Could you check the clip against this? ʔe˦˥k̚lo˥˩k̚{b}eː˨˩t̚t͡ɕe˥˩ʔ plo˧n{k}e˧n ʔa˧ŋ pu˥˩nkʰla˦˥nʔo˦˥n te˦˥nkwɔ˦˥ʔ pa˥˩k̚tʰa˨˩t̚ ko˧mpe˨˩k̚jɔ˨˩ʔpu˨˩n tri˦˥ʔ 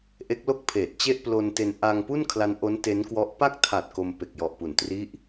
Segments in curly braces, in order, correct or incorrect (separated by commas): incorrect, incorrect